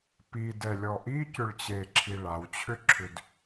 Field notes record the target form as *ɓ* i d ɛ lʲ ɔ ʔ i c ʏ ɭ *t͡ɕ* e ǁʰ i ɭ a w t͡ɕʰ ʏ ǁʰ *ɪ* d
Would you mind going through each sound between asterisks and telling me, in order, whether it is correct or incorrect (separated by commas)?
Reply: incorrect, correct, incorrect